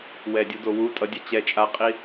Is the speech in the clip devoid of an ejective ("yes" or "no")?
no